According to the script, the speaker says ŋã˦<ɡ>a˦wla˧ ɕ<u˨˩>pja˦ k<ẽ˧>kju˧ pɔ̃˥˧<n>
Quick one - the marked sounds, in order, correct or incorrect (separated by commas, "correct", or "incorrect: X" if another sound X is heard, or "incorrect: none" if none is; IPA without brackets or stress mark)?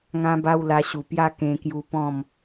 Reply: incorrect: b, correct, correct, incorrect: m